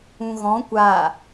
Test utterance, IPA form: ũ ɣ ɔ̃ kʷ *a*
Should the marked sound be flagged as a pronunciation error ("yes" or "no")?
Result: no